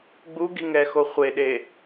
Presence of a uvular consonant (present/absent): present